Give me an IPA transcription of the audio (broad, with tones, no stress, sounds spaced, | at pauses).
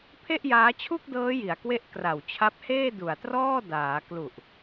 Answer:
pʰ e˥˩ ʔ j aː˦˥ t͡ɕʰ u˥˩ k̚ d ɤː˦˥ j i˨˩ a̯ k w e˥˩ ʔ k r a˨˩ w t͡ɕʰ a˦˥ p̚ h eː˥˩ d u˨˩ a̯ t r ɔː˥˩ d aː˩˦ k l u˨˩ ʔ